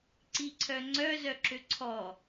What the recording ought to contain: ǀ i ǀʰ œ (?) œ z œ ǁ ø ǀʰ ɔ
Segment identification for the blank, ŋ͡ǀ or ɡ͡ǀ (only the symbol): ŋ͡ǀ